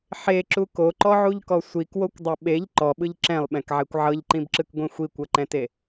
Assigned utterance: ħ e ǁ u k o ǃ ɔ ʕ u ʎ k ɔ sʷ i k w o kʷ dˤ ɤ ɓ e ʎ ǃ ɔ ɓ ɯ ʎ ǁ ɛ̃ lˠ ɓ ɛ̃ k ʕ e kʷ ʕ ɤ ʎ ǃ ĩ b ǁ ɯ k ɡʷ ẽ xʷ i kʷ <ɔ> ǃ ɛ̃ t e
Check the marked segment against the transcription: incorrect: ɤ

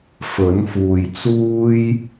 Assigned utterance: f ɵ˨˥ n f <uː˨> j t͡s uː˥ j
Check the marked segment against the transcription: correct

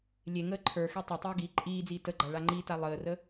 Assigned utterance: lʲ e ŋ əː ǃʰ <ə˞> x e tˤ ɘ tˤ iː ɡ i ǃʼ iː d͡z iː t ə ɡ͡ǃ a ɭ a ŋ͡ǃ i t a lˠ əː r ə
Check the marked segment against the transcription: correct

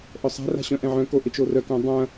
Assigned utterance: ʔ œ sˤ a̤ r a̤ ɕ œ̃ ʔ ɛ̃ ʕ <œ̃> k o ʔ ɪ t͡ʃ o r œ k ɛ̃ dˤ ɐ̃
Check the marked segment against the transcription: correct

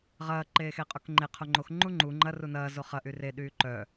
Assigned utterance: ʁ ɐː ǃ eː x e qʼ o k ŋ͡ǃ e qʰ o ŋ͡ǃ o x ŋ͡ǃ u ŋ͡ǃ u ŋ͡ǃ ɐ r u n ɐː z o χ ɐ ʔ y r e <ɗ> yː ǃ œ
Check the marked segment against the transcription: correct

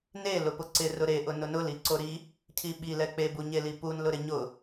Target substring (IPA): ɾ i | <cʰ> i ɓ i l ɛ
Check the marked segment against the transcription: correct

